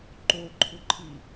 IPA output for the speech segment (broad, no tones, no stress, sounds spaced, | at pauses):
ǃ o ǃʰ ʊ ǃʰ i